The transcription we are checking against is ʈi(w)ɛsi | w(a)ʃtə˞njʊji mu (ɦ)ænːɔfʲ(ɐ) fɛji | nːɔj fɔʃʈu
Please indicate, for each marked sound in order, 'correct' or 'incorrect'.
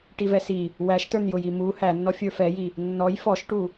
incorrect, incorrect, incorrect, incorrect

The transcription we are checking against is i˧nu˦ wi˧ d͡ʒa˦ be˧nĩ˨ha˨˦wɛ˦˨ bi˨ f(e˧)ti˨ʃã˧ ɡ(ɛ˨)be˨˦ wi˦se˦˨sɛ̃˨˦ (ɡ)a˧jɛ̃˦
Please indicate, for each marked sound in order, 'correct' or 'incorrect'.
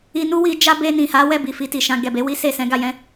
incorrect, correct, correct

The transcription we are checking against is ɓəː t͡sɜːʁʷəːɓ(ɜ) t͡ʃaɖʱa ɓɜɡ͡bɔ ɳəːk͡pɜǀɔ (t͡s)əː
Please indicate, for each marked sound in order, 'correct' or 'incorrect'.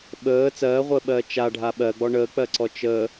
incorrect, incorrect

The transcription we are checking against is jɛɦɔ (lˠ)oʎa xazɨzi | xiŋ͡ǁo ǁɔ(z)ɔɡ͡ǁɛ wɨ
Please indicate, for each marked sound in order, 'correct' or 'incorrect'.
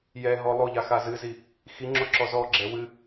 correct, correct

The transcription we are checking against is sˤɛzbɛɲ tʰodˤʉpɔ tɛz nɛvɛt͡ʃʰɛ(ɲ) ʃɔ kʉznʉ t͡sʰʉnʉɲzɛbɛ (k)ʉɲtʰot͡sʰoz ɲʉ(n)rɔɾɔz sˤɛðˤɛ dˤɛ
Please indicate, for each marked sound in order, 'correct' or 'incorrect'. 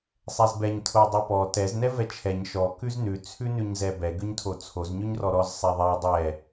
correct, incorrect, incorrect

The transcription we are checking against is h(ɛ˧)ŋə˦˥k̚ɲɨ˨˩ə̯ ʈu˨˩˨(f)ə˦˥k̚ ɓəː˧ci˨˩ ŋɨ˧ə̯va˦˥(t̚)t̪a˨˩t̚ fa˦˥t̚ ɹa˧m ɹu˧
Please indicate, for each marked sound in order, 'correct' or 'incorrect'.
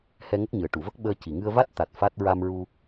correct, incorrect, correct

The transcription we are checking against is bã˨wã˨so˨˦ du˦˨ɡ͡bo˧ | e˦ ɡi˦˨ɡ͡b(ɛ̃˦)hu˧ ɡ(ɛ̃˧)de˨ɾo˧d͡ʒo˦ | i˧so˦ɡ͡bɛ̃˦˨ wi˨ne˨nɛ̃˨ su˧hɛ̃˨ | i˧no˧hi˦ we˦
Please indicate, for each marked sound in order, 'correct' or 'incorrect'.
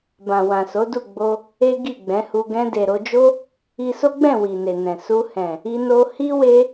incorrect, correct

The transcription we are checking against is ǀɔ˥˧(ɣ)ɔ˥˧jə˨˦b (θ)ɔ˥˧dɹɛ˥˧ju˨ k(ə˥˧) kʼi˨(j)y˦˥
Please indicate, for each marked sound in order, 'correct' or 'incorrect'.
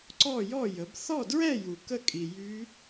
incorrect, correct, correct, correct

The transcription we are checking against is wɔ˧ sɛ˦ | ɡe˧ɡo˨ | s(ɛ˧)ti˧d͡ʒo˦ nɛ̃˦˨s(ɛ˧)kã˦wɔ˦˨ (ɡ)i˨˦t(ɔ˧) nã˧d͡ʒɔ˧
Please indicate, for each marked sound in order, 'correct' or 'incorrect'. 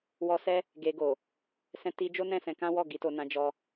incorrect, incorrect, correct, incorrect

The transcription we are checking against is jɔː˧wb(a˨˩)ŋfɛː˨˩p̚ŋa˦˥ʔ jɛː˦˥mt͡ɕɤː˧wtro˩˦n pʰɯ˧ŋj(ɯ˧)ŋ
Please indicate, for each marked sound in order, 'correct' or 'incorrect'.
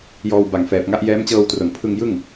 correct, incorrect

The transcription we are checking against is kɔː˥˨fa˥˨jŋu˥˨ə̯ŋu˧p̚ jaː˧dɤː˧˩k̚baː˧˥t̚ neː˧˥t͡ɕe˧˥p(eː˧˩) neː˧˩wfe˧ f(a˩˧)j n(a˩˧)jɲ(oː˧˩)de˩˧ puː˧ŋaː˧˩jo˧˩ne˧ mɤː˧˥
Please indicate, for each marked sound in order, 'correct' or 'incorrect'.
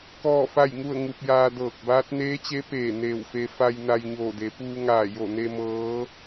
correct, incorrect, incorrect, correct

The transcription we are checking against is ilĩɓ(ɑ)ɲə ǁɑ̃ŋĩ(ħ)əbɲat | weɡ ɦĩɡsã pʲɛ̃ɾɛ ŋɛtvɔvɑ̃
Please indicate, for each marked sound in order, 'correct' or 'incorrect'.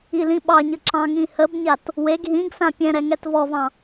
correct, incorrect

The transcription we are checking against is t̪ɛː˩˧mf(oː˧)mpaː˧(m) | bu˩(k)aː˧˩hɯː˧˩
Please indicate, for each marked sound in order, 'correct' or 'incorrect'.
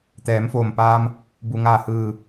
incorrect, correct, incorrect

